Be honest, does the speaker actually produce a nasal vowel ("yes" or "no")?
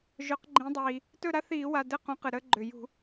yes